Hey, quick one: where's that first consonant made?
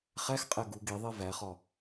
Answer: uvula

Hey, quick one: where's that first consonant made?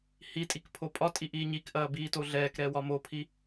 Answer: throat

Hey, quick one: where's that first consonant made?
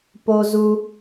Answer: lips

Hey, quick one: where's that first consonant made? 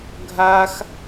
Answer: velum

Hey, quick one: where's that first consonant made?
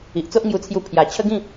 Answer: throat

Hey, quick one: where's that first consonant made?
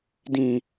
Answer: tongue tip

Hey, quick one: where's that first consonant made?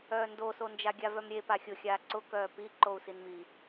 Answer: tongue tip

